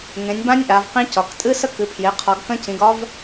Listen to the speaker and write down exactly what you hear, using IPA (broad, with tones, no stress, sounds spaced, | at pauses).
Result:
ŋ ẽ˩˧ nʲ b ã˦˥ nʲ ʔ a˩˧ v q ĩ˦˥ c ɒ˩˧ k tʼ ɨ˦˥ s ə˦˥ k ɨ˩˧ pʰ j e˩˧ qʰ ɒ˩˧ ɡ k ə̃˦˥ c ĩ˩˧ ɡ ɒ˦˥ v